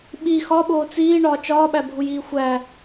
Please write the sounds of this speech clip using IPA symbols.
ɓ i x ɒ ɓ oː t͡s iː ɳ ɒː t͡ʃ ɒː ɓ æ bʱ u j iː xʷ æ

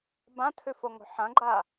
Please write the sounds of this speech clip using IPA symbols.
b ã tʰ ʉ f o ŋ o̤ ħ ɐ̃ ɡ͡ǃ a

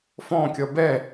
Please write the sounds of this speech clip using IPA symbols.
f ɔ̃ kʲ ʌ b ɛ

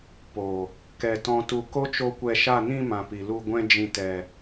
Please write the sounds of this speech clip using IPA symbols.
p o˨ | k ɛ˨ t ɔ̃˨ t u˨ k o˦ t͡ʃ o˧ kʷ ɛ˧ ʃ a˦˨ n ĩ˧ m ã˨ p i˨ l u˧ ɡʷ ɛ̃˦ d͡ʒ ĩ˧ t ɛ˧

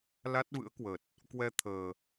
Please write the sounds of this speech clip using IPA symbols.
l a˦˥ t̚ v ɨ̰˧˥ ə̯ k w ə˨˩ t̚ | k w ɛ˧ t̪ʰ əː˨˩

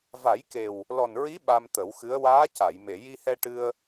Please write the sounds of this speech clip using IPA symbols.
v a˨˩˦ j k e˨˩ w | l ɔ˨˩ n ɹ i˧˥ ɓ a˧ m t̪ ə˨˩˦ w x ɨ˧˥ ə̯ w aː˧˥ c a˨˩˨ j m e˨˩˨ j i˧ h ɛ˧ ʈ ɨ˧ ə̯

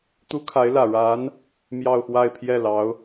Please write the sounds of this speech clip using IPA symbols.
t̪ u˥ kʰ a˧˥ ɪ̯ l ä˨˩ ɻ a˧˥ n | m j ɑ˥˧ ʊ̯ x w a˥˧ ɪ̯ pʰ j ɛ˥˩ l ɑ˧˥ ʊ̯

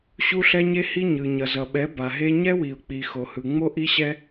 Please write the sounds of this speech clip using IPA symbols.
ɕ u˦ ɬ ɛ˦ ɲ e˦ h i˦ ɲ ɯ˨ ɲ ʌ˨ z ʌ˨ ɓ ɛ˨˦ b a˨ ɦ e˦ ɲ ɛ˦ w i˨ ʊ̯ k͡p i˨ x o˨ h ɯ˨ ŋ͡m o˦ ʔ i˦ ɕ ɛ˦

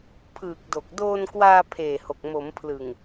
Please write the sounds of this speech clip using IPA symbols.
pʰ ɯː˨˩ k̚ d o˨˩ k̚ d oː˧ n k w aː˧ pʰ eː˨˩ h o˨˩ k̚ m o˩˦ m pʰ l ɯ˨˩ ŋ

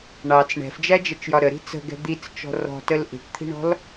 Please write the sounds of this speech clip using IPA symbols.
ɳ ɑ t͡s ɳ ɛ̤ f d͡ʒ æ d͡ʒ ɛ t͡ʃ j ɒ ɾ ə ɾ i̤ t͡s ə̤ ɡ ɛ̤ d̪ i t͡s t͡ʃ ɔ̤ r ɔ̤ t ə l ʔ i̤ ʈ t̪ʰ i̤ ɳ ɔ̤ l

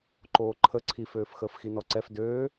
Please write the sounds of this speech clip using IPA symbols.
ǃ oː ǃʰ ə ǀʰ i f øː f x əː f x i n ɔ ǀ ɛ f d øː

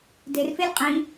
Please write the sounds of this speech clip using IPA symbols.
d e r f e lʲ qʼ ĩ

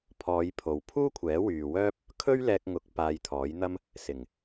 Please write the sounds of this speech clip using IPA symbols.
pʰ ɔː˨˧ j pʰ o˨ w pʰ uː˥ kʷʰ ɛː˨˥ w yː˨ w œː˥ p̚ | kʰ ɵ˥ ɥ l ɛː˧ k̚ ŋ ʊ˨˥ k̚ p aː˧ j t̪ʰ ɔː˨˥ j n̪ ɐ˥ m | s ɪ˨˩ ŋ

